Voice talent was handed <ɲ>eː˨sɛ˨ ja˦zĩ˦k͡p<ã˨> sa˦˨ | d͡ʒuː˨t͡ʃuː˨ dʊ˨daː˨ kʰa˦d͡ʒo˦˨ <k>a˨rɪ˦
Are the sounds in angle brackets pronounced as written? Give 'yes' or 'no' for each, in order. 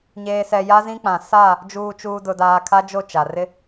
yes, yes, no

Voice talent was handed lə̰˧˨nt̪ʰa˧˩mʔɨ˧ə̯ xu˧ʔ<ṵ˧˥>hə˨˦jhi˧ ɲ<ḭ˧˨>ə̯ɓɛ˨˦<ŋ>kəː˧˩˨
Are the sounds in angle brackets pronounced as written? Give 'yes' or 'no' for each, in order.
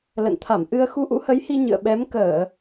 yes, no, no

